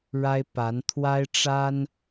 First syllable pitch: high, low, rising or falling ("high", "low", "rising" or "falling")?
high